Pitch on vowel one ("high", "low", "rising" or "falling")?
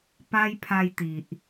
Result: high